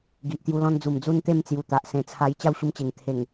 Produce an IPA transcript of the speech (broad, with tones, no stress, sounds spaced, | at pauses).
ɡ i˨ ʔ t̪ j u˧ l ɔ̃˧ n d͡z u˨˩ m d͡z u˦ n t̪ e˥˧ m t͡s j u˨˩ t̪ a˨ ʔ s ẽ˨˩ t͡sʰ a˧ j t͡ɕ a˥˧ w ɕ u˧ m t͡ɕ e˨˩ ŋ t̪ʰ e˨˩ ŋ